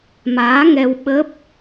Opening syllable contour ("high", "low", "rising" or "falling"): rising